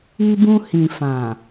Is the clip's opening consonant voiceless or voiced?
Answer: voiced